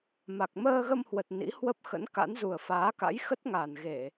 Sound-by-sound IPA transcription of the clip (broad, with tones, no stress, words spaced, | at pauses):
ma˨˩k̚ məː˧ɣə˧mhwə˨˩t̚ nḭ˧˥ hwə˦˥p̚xə̰˧˥n ka̰˧˥n zu˨˩ə̯faː˨˦ka̰˧˥jxə˦˥t̚ ŋa˨˩nɣe˧˩˨